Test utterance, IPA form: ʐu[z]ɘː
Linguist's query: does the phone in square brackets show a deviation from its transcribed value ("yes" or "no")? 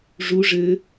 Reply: yes